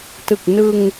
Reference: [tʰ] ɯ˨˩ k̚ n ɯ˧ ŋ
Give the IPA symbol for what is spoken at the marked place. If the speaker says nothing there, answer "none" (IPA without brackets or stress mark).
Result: t